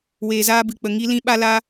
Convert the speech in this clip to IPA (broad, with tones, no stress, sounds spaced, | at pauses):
w eː˨ z aː˧ b ɨ˨ k͡p ə˨ ŋ i˦ l ĩ˦ ɓ a˦ l a˦